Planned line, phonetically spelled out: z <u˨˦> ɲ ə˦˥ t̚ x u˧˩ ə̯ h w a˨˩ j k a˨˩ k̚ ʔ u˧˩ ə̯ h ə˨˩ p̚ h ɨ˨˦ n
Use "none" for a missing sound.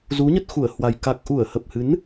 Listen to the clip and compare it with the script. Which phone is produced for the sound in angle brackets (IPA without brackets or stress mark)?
u˨˦